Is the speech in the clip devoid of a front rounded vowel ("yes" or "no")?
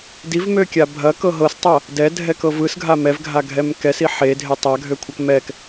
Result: no